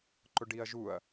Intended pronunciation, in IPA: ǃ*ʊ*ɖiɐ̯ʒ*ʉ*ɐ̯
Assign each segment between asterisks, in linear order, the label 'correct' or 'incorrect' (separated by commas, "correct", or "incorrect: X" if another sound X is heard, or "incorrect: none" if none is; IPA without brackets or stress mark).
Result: correct, incorrect: u